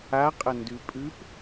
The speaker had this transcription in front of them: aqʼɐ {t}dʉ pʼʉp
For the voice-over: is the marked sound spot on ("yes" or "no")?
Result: no